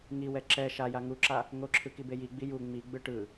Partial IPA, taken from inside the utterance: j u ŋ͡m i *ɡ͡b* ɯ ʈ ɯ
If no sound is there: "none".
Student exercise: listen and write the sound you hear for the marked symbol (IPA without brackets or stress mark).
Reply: ɡ͡b